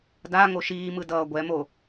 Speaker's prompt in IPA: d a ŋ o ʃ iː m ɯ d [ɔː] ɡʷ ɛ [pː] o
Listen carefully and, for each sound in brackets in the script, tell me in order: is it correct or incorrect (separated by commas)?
incorrect, incorrect